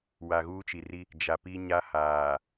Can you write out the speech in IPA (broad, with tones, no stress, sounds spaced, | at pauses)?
w a˨ ɣ uː˦ t͡ʃ i˨ r i˦ | d͡ʒ a˨ p i˦ ɲ a˦ h aː˨